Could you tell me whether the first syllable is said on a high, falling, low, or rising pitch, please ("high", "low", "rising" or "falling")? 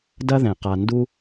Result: high